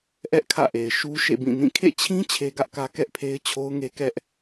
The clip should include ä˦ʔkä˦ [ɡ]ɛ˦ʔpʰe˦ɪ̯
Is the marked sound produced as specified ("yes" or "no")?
no